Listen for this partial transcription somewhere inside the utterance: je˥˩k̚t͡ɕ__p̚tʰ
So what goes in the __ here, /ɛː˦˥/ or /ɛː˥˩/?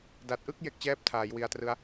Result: ɛː˥˩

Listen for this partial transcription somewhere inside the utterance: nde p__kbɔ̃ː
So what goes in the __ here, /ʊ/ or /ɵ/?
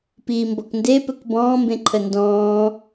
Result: ɵ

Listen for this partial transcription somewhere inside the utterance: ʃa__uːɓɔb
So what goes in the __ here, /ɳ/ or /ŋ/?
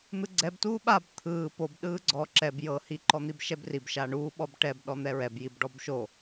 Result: ɳ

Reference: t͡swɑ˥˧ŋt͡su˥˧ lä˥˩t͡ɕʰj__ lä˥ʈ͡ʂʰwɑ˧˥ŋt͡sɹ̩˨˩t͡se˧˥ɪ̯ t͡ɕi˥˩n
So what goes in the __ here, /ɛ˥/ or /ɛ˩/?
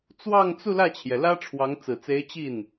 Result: ɛ˩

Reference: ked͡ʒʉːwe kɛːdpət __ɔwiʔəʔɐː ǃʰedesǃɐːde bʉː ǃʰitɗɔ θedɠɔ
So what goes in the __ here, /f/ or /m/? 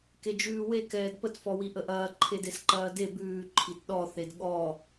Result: f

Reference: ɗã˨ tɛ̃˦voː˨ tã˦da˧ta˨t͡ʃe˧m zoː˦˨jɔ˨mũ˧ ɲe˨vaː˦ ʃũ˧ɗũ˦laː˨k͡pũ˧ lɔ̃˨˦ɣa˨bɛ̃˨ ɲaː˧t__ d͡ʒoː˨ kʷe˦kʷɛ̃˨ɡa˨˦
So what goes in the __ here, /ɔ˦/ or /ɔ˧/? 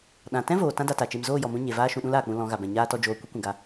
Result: ɔ˧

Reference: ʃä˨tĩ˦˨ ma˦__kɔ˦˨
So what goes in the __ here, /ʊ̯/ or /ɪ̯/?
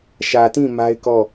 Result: ɪ̯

